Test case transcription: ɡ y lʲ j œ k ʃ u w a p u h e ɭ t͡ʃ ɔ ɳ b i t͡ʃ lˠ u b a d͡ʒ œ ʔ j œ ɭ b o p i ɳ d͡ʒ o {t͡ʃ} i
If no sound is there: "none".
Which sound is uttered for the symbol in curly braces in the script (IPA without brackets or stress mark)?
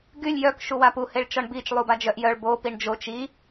t͡ʃ